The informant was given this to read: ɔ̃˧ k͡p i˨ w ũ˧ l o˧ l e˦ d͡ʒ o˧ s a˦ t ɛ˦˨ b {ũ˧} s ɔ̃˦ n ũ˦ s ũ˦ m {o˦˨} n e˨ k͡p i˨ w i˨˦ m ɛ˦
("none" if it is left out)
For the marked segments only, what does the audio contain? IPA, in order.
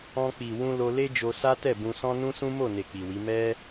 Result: ũ˧, o˦˨

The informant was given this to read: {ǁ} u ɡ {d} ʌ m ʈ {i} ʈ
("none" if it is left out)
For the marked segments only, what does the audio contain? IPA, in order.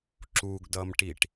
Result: ǁ, d, i

